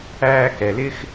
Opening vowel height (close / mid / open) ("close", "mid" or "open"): open